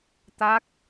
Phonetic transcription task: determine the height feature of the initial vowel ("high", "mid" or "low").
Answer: low